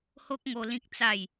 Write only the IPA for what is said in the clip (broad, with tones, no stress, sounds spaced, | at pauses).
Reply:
h o˦ k̚ ŋ o˧ l ĩ˦ k̚ t͡s a˥˧ j